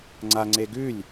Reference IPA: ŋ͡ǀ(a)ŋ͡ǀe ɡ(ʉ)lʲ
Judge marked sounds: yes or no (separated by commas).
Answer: yes, yes